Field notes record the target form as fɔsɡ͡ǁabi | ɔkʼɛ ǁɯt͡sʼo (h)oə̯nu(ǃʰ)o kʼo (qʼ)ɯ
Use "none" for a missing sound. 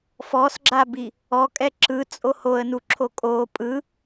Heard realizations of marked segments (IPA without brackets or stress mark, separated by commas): h, ǁʰ, pʼ